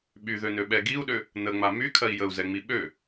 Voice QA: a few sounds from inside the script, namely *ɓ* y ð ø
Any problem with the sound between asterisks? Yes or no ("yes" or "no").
no